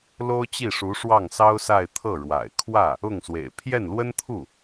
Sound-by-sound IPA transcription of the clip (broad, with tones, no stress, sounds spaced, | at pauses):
l o˥ ʊ̯ t͡ɕ i˥˩ ʂ u˧˥ ʂ w ɑ˥˩ ŋ s ɑ˥ ʊ̯ s a˥˧ ɪ̯ t̪ʰ ɤ˥˩ ɻ w a̰˨˩ ɪ̯ kʰ w ä˥˩ | ʊ˥˩ ŋ s w ḛ˨˩ ɪ̯ pʰ j ɛ˥˩ n l w ə˥ n t̪ʰ u˥˩